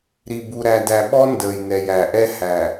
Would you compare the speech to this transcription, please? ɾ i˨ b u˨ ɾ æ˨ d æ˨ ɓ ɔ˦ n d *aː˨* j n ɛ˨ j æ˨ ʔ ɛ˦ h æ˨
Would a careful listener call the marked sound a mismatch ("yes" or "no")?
yes